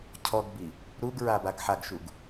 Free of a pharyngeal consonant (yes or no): no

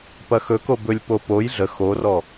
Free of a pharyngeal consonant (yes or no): yes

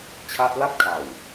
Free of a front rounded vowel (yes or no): yes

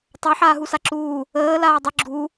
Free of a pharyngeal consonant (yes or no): no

